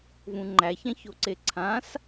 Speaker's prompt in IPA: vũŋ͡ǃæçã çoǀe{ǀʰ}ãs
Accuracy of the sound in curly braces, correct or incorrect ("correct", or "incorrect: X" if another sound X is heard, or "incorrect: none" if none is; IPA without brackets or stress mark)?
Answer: correct